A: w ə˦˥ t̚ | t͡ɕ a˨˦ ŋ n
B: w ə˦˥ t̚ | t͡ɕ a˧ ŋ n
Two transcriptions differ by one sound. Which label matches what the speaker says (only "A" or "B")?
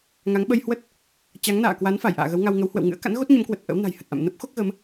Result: A